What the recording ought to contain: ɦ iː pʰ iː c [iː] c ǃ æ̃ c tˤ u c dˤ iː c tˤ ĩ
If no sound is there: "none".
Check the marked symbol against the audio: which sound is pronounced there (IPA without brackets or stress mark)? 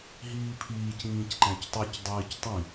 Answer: ĩː